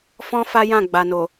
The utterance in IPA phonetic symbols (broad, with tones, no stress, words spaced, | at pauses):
fɔ̃˦ fa˦jã˦˨ɡ͡ba˨no˨